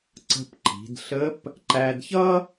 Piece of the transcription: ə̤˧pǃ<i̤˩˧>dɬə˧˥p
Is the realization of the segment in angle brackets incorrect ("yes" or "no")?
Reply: no